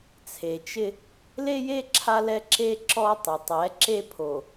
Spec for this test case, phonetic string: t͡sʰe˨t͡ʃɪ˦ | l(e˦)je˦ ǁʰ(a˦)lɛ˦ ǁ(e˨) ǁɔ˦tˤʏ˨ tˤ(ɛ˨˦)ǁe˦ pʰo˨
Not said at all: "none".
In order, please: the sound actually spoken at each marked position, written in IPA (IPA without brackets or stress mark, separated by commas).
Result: e˦, a˦, e˦, ɛ˨˦